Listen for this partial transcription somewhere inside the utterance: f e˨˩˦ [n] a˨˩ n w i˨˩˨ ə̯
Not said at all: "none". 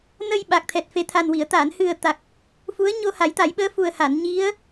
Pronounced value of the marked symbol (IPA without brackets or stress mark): t̪ʰ